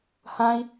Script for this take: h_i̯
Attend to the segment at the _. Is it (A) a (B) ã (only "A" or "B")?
B